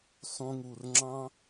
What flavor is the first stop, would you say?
click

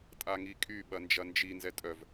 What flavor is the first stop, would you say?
ejective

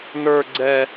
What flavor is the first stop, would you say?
click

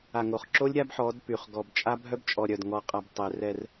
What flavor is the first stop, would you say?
click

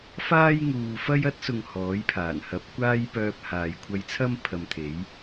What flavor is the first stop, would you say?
plain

